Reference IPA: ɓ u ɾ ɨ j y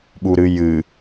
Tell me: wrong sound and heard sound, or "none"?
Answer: y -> ɨ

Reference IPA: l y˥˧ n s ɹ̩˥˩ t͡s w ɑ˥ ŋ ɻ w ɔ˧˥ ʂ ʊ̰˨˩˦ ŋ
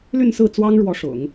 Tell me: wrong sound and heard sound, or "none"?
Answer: none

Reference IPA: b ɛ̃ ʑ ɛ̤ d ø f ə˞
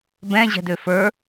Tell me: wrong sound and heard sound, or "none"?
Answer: none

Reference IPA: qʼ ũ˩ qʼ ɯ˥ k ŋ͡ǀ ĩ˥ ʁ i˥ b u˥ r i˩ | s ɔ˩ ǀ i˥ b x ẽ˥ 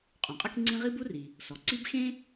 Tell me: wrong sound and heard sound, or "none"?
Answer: none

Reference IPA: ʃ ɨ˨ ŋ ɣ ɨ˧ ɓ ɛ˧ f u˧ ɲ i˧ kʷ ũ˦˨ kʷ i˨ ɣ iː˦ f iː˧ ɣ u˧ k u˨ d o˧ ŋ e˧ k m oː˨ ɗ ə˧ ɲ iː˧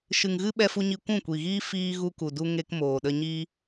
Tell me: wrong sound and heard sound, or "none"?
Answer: o˧ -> u˧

